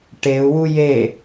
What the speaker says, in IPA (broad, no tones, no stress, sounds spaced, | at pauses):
ʈ e u̯ w u j e